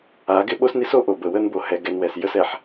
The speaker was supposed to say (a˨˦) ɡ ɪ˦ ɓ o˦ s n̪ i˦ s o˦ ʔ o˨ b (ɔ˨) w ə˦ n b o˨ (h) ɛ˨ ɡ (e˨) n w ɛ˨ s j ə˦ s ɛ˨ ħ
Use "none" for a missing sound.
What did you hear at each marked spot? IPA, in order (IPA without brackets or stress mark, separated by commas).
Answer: a˨˦, ə˨, h, ɛ˨